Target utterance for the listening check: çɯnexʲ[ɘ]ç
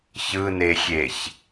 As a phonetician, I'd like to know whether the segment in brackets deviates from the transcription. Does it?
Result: yes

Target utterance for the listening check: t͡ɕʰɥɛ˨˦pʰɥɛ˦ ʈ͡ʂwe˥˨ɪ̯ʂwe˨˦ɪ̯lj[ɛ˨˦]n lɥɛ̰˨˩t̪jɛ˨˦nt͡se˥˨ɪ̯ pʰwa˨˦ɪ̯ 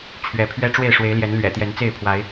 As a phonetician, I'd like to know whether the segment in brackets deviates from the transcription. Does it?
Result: no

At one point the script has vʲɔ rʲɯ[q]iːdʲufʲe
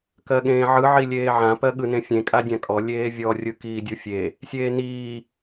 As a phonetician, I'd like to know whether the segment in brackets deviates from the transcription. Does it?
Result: yes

